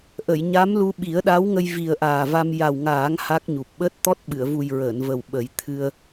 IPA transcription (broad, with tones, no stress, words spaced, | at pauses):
ʔə˨˩˨jɲa˧˥m lu˧ɓi˨˩˦ə̯ɗa˧˥wŋə˧j vi˨˩ə̯ ʔaː˨˩va˧m ja˨˩wŋaː˨˩˦ŋ ha˦˥k̚ɲu˨˩p̚ ɓəː˦˥t̚t̪ɔ˦˥t̚ ɓɨ˨˩˨ə̯vu˨˩j ɹəː˨˩˨nvə˨˩w ɓə˨˩˦jt̪ʰɨ˧ə̯